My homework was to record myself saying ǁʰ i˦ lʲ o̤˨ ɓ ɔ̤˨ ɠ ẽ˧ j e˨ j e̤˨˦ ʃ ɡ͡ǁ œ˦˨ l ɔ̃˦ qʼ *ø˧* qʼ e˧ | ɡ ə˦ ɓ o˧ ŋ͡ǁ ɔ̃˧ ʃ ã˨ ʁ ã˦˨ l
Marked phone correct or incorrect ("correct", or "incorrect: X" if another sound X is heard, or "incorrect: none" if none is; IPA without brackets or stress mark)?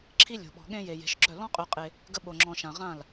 correct